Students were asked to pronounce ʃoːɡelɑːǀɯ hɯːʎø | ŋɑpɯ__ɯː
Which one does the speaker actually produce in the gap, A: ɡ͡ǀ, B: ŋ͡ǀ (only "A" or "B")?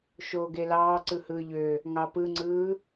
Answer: B